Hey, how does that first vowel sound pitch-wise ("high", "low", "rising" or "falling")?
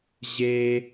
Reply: high